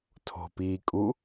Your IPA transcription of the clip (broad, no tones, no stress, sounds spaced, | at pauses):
tʰ o̤ p iː kʼ u